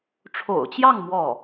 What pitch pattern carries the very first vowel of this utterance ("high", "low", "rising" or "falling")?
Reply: low